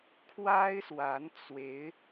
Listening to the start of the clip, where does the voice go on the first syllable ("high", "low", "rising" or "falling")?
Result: high